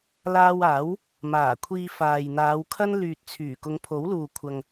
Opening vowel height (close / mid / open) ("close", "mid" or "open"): open